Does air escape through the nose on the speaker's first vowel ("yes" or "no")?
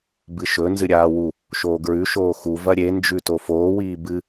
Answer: no